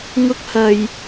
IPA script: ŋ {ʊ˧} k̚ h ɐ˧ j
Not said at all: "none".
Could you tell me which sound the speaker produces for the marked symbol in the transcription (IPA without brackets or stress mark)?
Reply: ʊ˥